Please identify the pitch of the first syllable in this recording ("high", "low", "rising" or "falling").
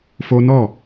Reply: high